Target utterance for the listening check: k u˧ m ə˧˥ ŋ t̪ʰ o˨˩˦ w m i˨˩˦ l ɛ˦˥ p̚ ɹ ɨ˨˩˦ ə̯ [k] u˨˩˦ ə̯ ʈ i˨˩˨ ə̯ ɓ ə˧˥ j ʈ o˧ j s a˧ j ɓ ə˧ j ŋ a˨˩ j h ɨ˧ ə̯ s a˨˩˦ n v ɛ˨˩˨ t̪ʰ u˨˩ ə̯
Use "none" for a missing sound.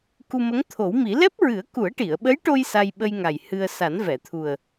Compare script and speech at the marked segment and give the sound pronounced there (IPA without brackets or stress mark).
k